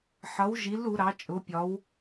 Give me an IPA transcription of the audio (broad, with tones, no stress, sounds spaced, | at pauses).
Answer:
ħ ʌ˨˦ w ʒ i˨˦ l u˨˦ ɾ ɑ˨˦ t͡ʃʼ ʊ˨˦ pʲ ɒ˨˦ w